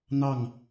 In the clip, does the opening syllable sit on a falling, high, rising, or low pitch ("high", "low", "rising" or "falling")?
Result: falling